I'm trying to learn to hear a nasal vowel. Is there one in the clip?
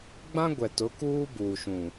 yes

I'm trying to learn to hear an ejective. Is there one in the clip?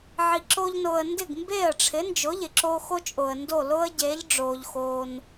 yes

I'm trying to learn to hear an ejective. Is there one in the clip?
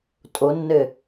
yes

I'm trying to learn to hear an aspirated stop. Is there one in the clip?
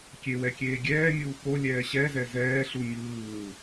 no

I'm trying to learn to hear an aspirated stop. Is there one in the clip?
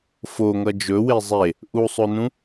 no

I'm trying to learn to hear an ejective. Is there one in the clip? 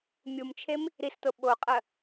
yes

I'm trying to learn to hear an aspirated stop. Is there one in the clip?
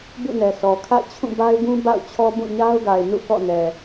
yes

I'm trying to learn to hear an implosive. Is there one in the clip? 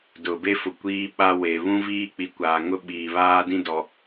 yes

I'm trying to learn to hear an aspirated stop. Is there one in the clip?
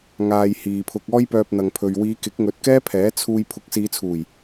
yes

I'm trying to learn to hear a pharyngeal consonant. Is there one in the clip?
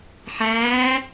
yes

